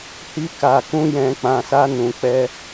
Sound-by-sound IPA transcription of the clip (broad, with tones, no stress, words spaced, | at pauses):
hi˧ka˨ kũ˧jɛ̃˨k͡pã˨sa˧ nũ˨k͡pɛ˧